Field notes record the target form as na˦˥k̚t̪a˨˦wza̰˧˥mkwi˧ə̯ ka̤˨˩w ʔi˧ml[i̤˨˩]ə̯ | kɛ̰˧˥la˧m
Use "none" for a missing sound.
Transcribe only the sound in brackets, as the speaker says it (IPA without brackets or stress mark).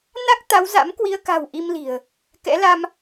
i̤˨˩